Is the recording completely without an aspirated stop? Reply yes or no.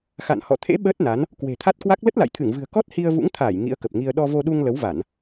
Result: no